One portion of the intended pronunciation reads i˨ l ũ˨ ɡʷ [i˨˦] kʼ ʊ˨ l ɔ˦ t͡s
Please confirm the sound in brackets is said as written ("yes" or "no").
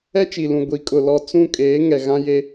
yes